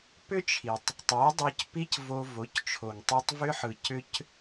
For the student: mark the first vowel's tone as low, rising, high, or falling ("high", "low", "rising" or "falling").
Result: high